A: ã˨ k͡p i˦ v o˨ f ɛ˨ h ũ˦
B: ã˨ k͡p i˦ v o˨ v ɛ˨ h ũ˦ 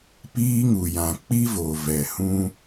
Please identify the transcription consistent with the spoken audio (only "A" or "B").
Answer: B